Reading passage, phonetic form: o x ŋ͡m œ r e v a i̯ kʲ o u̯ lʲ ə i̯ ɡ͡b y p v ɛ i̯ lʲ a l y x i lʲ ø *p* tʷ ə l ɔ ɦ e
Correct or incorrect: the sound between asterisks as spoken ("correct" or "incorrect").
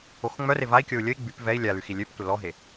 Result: correct